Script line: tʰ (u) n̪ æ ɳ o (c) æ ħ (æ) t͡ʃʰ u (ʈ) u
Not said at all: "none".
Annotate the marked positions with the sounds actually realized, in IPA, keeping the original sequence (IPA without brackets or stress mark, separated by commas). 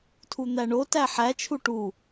u, t, æ, ʈ